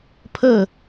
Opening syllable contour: falling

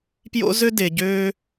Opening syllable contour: high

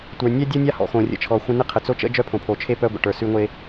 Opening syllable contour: low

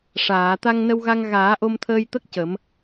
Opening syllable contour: low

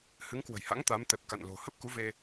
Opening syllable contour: rising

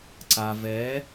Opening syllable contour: low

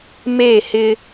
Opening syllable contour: falling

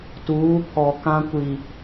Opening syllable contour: rising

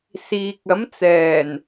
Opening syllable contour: low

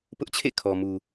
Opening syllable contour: high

